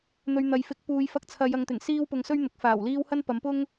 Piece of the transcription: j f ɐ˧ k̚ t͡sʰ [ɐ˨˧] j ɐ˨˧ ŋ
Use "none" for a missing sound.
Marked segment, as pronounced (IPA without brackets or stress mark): ɐ˨˧